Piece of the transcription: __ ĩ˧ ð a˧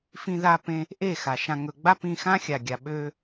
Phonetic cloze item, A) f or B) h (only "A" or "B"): A